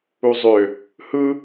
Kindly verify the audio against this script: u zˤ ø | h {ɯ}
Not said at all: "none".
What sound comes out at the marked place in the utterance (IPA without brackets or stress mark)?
ɯ